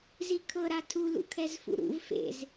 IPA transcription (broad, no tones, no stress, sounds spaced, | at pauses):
z i kʰ ɤ ɾ a tʰ u l ṵ kʰ ɛ z f ṵ ɾ ṵ v f ḛ z